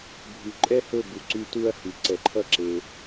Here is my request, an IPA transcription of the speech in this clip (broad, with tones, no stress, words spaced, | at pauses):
bʱy˨ǃʼɛ˦hɵ˦˨bu˨ ǀy˧ tu˦ɐ̯hy˨ǀɛ˧ ǃʰʌ˦ǁe˧